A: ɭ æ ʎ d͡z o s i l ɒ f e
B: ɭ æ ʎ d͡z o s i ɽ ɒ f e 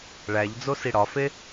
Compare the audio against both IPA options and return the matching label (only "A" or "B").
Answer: B